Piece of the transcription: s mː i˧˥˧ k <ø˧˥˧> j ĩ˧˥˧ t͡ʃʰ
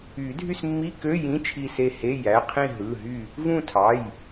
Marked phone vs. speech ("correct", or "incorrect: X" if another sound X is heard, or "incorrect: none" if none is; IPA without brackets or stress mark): correct